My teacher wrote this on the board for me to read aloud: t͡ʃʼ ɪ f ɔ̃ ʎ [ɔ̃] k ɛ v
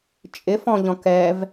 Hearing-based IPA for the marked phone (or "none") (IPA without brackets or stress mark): ɔ̃